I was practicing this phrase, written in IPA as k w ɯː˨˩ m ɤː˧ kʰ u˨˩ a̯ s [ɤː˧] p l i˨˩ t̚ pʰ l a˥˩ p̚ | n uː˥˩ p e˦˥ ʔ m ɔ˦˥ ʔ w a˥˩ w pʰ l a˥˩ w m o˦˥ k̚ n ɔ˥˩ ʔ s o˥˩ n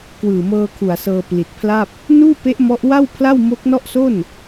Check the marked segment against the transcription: correct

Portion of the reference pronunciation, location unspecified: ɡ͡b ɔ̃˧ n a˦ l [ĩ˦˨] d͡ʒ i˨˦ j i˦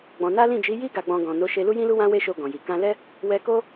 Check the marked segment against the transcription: correct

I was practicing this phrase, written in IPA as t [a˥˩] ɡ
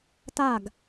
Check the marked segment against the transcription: correct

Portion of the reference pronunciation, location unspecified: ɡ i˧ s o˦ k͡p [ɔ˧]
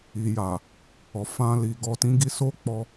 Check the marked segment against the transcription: correct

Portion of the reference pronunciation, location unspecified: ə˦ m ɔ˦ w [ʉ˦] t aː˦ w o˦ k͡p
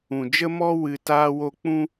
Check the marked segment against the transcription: incorrect: ɨ˦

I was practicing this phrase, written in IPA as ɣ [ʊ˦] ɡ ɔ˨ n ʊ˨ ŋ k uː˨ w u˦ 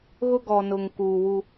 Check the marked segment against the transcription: correct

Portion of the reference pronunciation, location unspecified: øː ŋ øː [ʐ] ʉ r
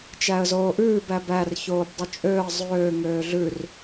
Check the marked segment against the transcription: incorrect: ɮ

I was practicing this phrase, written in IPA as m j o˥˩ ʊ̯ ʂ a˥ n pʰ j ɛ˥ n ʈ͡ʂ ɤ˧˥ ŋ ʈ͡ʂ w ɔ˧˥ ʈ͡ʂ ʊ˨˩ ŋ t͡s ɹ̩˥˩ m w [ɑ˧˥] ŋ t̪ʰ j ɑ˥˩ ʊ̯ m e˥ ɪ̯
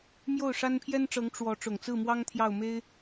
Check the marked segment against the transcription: incorrect: ɑ˥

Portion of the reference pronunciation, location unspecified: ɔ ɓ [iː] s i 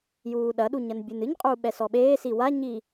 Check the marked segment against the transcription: incorrect: eː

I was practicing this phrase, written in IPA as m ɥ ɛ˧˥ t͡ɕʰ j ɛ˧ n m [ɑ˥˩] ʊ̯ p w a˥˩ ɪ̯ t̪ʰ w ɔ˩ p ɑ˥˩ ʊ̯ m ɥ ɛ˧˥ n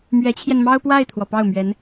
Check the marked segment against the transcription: incorrect: ɑ˥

